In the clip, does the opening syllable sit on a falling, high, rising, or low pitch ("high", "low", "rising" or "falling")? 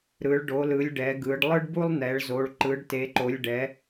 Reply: rising